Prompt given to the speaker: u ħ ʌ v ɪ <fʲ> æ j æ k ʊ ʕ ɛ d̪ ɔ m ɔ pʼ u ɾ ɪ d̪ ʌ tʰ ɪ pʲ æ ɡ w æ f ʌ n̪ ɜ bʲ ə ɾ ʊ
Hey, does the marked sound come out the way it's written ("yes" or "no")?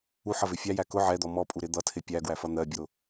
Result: yes